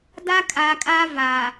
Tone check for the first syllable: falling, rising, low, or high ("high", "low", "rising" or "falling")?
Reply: high